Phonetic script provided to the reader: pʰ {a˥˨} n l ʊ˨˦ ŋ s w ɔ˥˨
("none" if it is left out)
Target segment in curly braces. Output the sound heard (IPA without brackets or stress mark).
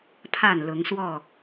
a˥˨